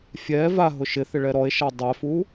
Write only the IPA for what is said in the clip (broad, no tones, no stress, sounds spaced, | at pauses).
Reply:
fʲ ɛ v a ɦ ʊ ʃ ɪ θ ɪ ɭ ɛ ɾ ɔ e̯ ʃ a dˤ ɛ f u